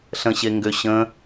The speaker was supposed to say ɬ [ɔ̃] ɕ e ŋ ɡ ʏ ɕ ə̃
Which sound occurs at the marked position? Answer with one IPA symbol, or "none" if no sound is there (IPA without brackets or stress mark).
ə̃